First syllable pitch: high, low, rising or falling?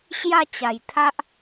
falling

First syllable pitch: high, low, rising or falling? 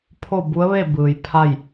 falling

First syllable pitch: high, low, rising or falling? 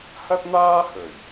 high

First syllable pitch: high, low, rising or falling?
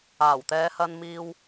low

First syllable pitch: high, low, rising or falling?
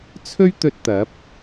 high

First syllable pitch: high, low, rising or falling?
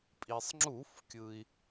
low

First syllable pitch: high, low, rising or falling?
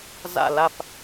falling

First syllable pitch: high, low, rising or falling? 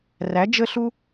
rising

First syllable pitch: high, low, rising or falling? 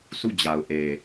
falling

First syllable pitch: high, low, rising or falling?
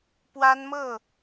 high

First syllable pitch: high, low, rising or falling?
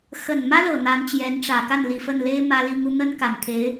low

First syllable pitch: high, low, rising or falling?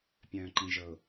low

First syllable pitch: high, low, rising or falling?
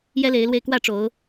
high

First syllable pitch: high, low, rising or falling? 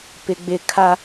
high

